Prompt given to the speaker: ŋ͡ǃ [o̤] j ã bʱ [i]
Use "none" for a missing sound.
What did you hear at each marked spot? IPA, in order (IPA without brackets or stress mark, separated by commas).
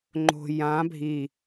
o̤, i